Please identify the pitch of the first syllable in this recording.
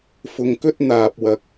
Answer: low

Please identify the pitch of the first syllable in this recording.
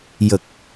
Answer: low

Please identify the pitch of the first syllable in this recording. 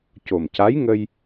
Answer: low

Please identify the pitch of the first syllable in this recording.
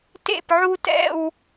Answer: falling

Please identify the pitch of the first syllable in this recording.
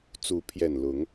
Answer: rising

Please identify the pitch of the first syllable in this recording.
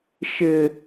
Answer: high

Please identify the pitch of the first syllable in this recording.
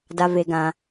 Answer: low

